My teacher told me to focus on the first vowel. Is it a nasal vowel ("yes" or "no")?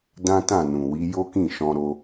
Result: yes